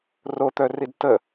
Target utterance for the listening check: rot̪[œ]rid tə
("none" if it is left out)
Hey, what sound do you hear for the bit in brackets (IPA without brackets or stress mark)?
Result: œ